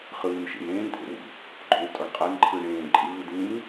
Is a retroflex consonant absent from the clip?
no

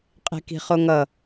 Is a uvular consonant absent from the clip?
no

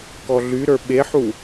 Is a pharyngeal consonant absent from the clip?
no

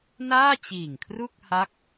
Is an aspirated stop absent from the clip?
no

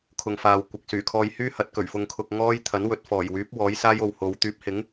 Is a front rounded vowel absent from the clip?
no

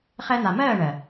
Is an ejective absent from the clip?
yes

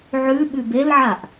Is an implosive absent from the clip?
no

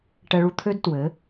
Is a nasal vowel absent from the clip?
yes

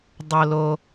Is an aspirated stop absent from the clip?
yes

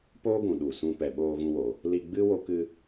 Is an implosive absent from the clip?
no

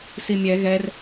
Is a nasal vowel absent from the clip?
yes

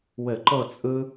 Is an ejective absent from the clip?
no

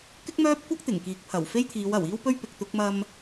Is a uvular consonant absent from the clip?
yes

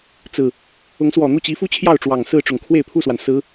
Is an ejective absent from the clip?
yes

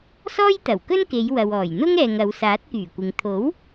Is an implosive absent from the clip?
yes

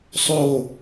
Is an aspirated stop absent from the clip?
yes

